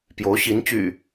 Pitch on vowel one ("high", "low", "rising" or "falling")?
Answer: rising